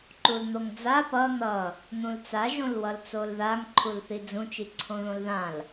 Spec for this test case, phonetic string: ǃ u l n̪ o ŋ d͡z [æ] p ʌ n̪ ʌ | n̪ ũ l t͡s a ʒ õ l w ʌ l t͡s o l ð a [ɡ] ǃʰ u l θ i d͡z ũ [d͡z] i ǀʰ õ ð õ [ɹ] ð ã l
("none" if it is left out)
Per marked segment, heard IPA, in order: a, ŋ, t͡ʃ, l

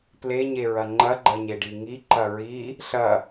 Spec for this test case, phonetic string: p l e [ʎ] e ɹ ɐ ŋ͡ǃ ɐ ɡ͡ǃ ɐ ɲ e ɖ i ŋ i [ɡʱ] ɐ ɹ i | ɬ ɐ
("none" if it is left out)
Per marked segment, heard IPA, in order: ɲ, ǃ

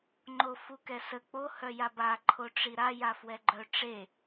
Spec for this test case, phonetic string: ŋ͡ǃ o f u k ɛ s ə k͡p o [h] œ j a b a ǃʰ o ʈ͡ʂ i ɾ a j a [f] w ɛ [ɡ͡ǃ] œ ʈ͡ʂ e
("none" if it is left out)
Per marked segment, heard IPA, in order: h, f, ɡ͡ǃ

